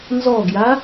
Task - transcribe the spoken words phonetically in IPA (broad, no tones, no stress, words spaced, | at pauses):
nzɔɡja